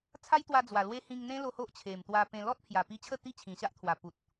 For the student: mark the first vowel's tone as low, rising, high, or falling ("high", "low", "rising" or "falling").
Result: high